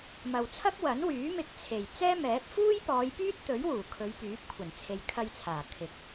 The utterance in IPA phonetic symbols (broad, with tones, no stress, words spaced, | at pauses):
mɐ˨wt͡sʰɐ˥k̚ wɐ˨˥nwyː˨˥ mɪ˧k̚t͡sʰe˨˩j t͡sɛː˥mɛː˨˥p̚ fuː˥jpɔː˨˧jpyː˥t̚t̪ɵ˨˥ɥ wuː˨˩kʰɵ˨˧ɥpyː˨˥p̚kʷʰɐ˨˩n t͡sʰe˨jkʰɐ˧jt͡sʰaː˨˩ kʰɪ˨˥k̚